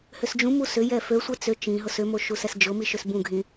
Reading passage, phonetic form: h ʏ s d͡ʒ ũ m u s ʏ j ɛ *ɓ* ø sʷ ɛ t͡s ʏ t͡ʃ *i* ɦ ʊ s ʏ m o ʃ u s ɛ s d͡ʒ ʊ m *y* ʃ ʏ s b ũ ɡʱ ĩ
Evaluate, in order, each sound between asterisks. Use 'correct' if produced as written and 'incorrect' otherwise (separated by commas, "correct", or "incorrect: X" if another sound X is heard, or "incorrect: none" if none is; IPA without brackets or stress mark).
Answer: incorrect: f, incorrect: ĩ, incorrect: i